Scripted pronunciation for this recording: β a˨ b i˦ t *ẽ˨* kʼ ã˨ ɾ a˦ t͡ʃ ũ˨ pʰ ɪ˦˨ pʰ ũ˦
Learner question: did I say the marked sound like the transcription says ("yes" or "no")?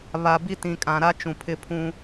no